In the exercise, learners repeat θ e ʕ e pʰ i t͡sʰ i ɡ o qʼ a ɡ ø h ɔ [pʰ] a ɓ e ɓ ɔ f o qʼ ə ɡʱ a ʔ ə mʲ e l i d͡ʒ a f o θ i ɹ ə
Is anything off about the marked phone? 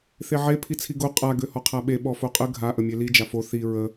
yes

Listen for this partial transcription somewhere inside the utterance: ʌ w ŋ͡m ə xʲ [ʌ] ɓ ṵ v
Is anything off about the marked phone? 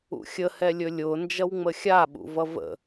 yes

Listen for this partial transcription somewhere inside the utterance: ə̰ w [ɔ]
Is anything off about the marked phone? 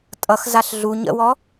no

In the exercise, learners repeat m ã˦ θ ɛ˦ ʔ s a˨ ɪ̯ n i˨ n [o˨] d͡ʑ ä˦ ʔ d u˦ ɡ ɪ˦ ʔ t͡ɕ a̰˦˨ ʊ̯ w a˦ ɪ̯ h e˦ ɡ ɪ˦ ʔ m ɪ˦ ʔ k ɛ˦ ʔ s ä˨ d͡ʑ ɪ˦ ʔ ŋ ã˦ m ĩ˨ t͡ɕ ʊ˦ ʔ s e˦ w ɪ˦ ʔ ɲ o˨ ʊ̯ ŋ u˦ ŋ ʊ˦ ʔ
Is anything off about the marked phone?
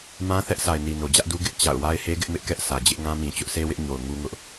no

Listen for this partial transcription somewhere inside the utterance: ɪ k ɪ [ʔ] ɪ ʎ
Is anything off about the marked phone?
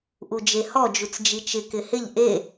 yes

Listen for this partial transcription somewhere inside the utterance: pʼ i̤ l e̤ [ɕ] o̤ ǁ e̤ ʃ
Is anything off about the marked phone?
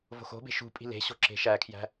no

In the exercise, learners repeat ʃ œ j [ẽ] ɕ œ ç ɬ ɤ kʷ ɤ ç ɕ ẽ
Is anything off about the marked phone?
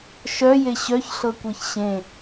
yes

